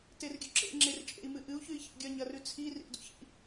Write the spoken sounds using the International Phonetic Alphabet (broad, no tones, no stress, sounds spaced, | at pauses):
t e r ɡʲ ɵ ǁ ḛ ŋ͡ǁ e r t͡ʃʼ ḛ i̯ m ɨ ʔ ɨ u̯ ç ʉ i̯ ç ḭ ɡʲ ɐ ɲ ɐ r ʉ t͡sʰ i r ḭ ʔ d ṵ ç ḭ